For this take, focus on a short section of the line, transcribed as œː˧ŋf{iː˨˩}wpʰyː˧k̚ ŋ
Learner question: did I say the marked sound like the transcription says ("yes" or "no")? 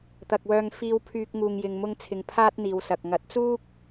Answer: no